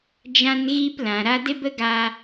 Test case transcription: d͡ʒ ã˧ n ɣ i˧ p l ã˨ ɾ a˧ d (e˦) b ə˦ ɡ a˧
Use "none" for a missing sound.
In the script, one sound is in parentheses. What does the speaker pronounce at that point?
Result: e˦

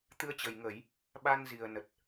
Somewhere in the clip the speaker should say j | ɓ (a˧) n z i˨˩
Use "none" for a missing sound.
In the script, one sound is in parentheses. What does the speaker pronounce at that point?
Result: a˧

